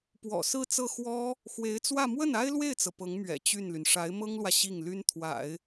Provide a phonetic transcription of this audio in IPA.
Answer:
p w ɔ̰˨˩ s ɹ̩˥˧ t͡s ɤ˥˩ x w ɔ˥ | x w e˧˥ ɪ̯ t͡s w ä˥˧ m w ə˥˩ n a˥ ɪ̯ l w e˥˩ ɪ̯ t͡s ɤ˩ p ɤ˧˥ ŋ m ɥ ɛ̰˨˩ t͡ɕ y˥˩ n l y˩ n ʂ a˧˥ ɪ̯ m ɤ˥ ŋ l w ä˨ ɕ i˥˩ ŋ l y˥ n t̪ʰ w a̰˨˩˦ ɪ̯

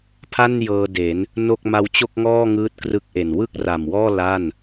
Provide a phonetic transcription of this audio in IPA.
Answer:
pʰ a˥˩ n j ɤː˧ d e˩˦ n | n o˥˩ k̚ m a˧ w t͡ɕ o˥˩ k̚ ŋ ɔː˥˩ ŋ ɯː˦˥ t̚ k r ɯ˦˥ k̚ ʔ e˨˩ n w ɯ˥˩ k̚ r a˨˩ m w ɔː˥˩ l a˥˩ n

